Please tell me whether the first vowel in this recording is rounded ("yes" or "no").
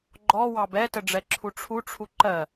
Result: yes